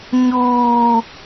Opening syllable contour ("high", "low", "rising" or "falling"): high